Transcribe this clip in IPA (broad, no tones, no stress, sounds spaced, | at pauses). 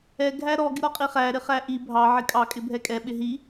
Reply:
ɛ ɡʱ æ ɾ ɔ ɡ ɪ ɾ ɔ qʼ i χ æ ɾ ɪ χ æ ʔ i bʱ ɑ ʕ ɪ kʼ ɑ kʼ ɪ bʱ ɛ kʼ ɛ ɓ ɪ ɦ i